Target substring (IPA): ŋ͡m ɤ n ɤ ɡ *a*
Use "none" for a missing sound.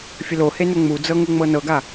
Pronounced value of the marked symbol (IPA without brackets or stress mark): a